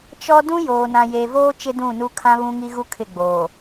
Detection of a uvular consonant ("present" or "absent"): absent